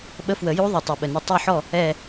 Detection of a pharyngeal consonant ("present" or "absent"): present